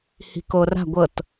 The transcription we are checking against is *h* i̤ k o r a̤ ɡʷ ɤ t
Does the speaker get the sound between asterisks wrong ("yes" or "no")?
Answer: no